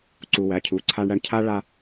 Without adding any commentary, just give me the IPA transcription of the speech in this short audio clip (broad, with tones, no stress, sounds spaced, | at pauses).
ǀ u˨ w æ˨ cʰ u˨ ǀʰ a˧ ɳ ɽ æ˧ ɳ cʰ a˦ ɭ a˧